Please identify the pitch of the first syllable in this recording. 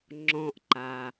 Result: low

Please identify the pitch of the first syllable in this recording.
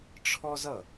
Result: high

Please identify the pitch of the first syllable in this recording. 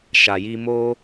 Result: low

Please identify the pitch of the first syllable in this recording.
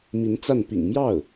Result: rising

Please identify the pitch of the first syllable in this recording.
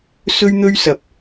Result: high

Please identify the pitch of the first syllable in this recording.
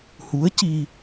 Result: rising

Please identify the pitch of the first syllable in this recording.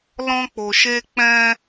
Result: high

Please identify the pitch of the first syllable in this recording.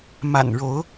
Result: low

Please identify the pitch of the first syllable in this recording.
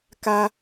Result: high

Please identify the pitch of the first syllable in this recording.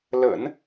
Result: low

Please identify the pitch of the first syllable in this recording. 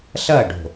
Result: falling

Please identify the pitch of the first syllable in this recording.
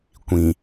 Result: low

